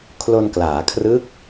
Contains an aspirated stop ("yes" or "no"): yes